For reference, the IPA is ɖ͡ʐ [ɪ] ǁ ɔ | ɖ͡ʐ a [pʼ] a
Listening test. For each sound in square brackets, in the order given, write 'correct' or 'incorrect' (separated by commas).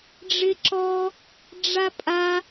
correct, correct